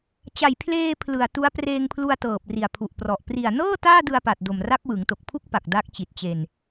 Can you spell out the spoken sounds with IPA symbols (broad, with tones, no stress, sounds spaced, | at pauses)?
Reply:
t͡ɕ a˨˩ j pʰ l eː˧ pʰ l ɯ˨˩ a̯ t u˦˥ a̯ p r eː˧ ŋ pʰ l u˧ a̯ t ɤː˨˩ p̚ r i˨˩ a̯ pʰ u˨˩ ʔ p r ɔ˨˩ ʔ p r i˨˩ a̯ n ɤː˥˩ t aː˥˩ d ɯ˧ a̯ p a˨˩ t̚ d o˨˩ m r a˦˥ k̚ w ɯ˩˦ ŋ t o˨˩ k̚ pʰ u˥˩ k̚ p a˨˩ k̚ d a˦˥ k̚ t͡ɕ i˨˩ t̚ t͡ɕ e˧ n